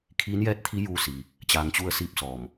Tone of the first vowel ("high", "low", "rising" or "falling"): rising